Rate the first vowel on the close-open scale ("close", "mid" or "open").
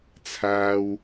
open